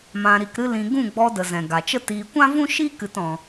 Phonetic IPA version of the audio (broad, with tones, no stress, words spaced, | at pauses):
mã˧ɾi˧kɾɨ˦lĩ˧ ɡũ˦˨ɡ͡bɔ˧də˨ zɛ̃˨ɡa˨t͡ʃə˦tiː˧ kʷã˦vũ˦ʃi˦kɨ˧t ɔ̃˧